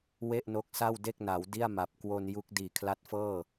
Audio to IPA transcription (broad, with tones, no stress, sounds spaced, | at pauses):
w e˥˩ ʔ n o˦˥ k̚ s a˥˩ w d e˥˩ k̚ n a˩˦ w d i˥˩ a̯ m a˨˩ p̚ k w o˧ n j u˦˥ k̚ d iː˨˩ kʰ l a˦˥ t̚ f ɤː˥˩